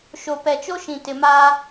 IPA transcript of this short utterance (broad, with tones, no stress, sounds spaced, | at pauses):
ʃ o˨ p ɛ˨ t͡ʃ o˦ ʃ ĩ˨ t ɪ˨ m aː˦